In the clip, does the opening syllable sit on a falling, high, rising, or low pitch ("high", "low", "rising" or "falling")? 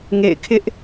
falling